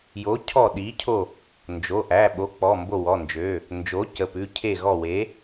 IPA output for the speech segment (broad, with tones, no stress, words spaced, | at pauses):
jo˨˥cʰɔ˦˨ɗi˨˥cʰo˦˨ | nd͡ʒo˩˧˩ ʔæ˩˧˩ɓo˨˥ k͡pɔ˩˧˩mbo˦˨wɔ˩˧˩nd͡ʒø˩˧˩ | nd͡ʒo˨˥ cə˩˧˩pʉ˩˧˩ cʰe˦˨ ɣɔ˦˨we˨˥